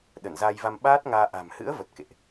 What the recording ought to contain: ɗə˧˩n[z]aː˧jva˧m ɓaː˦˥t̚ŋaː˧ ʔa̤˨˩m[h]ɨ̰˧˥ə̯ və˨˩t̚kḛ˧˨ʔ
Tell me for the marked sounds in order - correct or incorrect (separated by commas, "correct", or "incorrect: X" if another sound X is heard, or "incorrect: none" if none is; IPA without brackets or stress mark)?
correct, correct